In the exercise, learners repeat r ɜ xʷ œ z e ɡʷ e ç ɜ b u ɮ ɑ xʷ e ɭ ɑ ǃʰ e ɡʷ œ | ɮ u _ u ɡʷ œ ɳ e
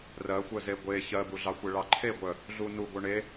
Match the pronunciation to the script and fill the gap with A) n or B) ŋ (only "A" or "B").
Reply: A